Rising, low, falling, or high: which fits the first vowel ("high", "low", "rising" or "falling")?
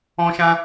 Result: high